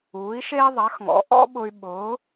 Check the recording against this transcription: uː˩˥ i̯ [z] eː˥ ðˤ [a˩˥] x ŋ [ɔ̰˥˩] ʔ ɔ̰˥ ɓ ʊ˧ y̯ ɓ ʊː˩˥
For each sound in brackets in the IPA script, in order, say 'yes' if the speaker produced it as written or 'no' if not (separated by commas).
no, yes, no